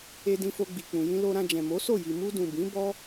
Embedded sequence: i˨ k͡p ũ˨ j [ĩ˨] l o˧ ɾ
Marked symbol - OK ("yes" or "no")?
no